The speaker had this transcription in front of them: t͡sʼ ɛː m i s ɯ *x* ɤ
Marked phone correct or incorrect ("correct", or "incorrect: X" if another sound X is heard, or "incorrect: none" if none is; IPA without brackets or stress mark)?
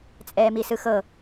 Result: correct